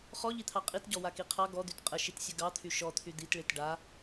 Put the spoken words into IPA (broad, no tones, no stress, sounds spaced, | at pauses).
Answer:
χ ɔ ʎ i t̪ʰ ɑ qʼ i t ɟ ɔ w a k i qʰ ɑ ɡ ɔ d̪ y t qʼ ə ʃ i t sʲ ə ɡ ɑ t̪ʰ y ʃ ɔ t̪ʰ y d̪ i t ɭ i t ɖ a